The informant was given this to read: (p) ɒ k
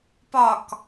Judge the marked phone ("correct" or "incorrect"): correct